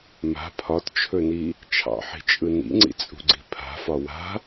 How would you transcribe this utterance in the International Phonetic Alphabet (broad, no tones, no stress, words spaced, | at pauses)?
ma̤ pʰɒtt͡ʃʰɵni | t͡ʃʰɑ̰ħi̤t͡ʃʼɯ nḭŋ͡ǀḭt͡sʼṳɡ͡ǀi̤ pʰa̤fɒ wa̤